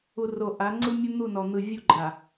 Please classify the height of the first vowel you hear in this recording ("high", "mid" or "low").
high